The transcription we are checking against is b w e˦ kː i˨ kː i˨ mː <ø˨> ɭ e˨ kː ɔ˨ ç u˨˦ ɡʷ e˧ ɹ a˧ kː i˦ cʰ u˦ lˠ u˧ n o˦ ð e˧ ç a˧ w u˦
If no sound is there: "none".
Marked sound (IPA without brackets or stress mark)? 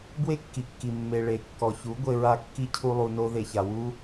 e˨